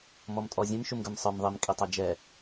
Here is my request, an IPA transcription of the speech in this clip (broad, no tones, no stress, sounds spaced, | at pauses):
m ɔ m tʼ ɔ zʲ ɛ̃ m ʃ u m ɡ ə˞ m sˤ ə˞ m ðˤ i m kʼ i tˤ ɛ d͡ʒ ɛ